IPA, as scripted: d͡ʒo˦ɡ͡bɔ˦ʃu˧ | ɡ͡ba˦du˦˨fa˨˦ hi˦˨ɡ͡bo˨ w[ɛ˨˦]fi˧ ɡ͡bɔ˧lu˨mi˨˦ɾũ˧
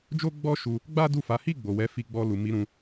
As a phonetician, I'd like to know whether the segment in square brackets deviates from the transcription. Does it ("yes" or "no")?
no